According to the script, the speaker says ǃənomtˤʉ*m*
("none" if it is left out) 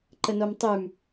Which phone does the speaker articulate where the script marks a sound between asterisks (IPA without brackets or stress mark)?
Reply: m